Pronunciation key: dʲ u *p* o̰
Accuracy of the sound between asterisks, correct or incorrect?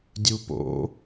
correct